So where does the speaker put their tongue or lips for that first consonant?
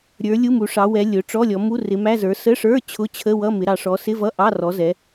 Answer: tongue tip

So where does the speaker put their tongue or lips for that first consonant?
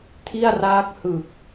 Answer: tongue tip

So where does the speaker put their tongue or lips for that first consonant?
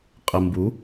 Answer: uvula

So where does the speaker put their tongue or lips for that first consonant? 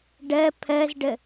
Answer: retroflex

